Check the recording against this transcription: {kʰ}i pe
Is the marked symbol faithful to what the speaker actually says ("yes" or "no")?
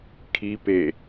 yes